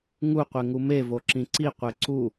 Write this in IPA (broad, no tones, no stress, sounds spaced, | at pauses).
ŋ u qʷ e ŋ u m e v o ǁ ĩ ǀ i qʷ e ǀ u